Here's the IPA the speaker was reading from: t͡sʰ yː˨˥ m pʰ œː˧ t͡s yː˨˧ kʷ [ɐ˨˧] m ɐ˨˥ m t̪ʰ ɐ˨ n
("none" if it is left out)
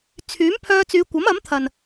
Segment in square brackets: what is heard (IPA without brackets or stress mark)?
ɐ˨˥